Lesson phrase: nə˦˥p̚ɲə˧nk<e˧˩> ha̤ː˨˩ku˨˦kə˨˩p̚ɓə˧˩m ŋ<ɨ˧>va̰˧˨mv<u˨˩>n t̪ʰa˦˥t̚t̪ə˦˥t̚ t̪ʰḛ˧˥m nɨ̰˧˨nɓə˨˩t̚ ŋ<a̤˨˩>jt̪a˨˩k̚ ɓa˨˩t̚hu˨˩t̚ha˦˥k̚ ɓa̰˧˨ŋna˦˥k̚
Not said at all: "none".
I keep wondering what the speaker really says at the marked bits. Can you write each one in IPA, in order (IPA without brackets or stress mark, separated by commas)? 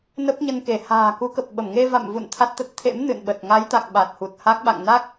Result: e˧˩, e˧, ṵ˧˨, a˨˦